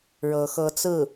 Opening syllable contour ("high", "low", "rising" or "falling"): rising